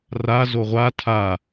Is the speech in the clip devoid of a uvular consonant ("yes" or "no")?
no